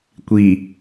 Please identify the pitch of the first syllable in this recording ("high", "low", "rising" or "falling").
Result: low